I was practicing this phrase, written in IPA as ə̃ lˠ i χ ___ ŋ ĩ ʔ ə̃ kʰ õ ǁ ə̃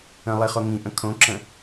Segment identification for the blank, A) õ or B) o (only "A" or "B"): B